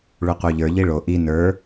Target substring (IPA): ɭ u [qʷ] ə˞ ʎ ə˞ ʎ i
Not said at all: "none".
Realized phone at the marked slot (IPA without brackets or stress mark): qʷ